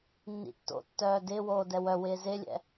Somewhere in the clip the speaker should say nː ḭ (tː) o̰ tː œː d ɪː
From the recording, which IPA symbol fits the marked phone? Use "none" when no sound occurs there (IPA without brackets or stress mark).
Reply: tː